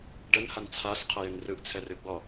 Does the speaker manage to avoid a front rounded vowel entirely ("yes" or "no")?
no